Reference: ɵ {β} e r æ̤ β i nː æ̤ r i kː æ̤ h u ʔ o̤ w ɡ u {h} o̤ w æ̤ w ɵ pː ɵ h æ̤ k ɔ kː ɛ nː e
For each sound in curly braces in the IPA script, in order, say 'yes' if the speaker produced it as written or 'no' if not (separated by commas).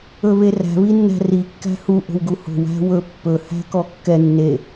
yes, yes